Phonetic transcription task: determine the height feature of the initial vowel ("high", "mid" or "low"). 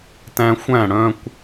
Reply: low